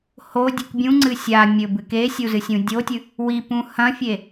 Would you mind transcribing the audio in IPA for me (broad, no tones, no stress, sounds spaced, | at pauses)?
h o dʲ ɨ k bʲ ũ ŋ͡ǀ ɨ sʲ a mʲ ɵ b ɨ k e sʲ u z ɨ sʲ ũ dʲ o tʲ ɨ | w i p ũ h ɐ̃ fʲ e